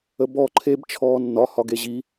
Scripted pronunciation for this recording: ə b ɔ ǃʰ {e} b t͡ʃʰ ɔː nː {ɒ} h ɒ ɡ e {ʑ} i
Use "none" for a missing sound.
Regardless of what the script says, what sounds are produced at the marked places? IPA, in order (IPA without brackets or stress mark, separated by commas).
e, ɒ, ʑ